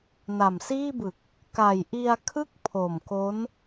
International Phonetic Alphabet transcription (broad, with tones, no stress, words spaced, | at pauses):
na˨˩msiː˥˩bɯ˨˩k̚ | ka˨˩jʔi˧a̯kʰɯ˥˩k̚ pʰo˨˩mko˦˥n